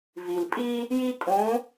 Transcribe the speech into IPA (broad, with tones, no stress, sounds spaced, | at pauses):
v i˩ l pʼ i˥ | j i˥ kʼ ũ˧˥